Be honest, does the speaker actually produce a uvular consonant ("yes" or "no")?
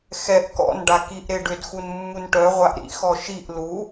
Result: yes